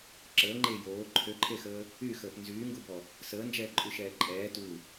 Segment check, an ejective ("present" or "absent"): present